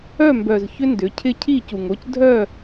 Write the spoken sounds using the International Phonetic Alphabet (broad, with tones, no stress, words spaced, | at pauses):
œ˦˨mbœ˨z çʏ˦ndʏ˨˦ cʰɪ˦ cʰi˦˨cu˨ŋo˦c dʱœ˦˨